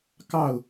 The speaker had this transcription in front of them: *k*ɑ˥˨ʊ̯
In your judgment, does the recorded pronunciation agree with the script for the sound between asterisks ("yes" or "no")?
yes